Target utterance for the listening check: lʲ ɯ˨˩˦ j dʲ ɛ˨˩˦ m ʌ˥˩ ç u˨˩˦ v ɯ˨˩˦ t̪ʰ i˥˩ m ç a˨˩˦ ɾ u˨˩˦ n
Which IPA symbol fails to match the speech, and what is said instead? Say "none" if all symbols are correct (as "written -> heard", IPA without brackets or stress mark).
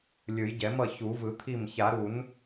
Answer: dʲ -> ɟ